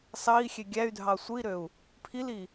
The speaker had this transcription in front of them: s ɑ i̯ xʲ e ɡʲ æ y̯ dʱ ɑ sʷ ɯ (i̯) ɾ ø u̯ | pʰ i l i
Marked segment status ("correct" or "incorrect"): correct